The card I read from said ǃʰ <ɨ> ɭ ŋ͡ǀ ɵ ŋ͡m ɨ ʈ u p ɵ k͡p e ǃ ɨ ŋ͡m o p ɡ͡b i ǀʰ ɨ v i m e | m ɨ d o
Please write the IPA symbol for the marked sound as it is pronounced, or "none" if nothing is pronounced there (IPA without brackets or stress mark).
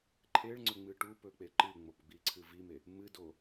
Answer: e